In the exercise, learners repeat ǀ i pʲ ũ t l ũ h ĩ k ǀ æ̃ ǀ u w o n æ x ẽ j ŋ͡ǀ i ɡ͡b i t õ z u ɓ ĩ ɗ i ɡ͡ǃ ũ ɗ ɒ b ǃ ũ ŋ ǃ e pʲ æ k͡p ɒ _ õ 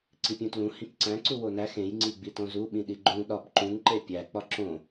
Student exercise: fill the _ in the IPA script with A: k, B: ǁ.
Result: B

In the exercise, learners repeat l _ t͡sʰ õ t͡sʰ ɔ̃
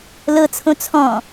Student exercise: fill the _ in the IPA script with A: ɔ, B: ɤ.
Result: B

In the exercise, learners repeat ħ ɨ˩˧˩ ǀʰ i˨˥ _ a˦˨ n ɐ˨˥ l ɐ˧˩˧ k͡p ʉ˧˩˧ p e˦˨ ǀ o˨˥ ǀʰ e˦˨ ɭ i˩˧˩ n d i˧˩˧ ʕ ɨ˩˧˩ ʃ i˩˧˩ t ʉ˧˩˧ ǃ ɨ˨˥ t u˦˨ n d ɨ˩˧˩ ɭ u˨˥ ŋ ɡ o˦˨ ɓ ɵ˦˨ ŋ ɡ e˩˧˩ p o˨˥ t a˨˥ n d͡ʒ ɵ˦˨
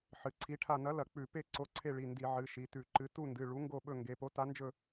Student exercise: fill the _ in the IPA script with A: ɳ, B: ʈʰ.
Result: B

